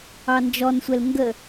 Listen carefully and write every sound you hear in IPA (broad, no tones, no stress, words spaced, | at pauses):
ɑnd͡ʒɔnsʷɛl ŋɡə